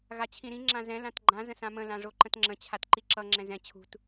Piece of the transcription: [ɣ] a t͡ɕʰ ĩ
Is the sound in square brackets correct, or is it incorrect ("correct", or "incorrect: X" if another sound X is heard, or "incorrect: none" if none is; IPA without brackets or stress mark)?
correct